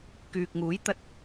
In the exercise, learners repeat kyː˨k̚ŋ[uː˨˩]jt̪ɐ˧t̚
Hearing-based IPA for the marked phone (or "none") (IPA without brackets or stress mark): uː˨˥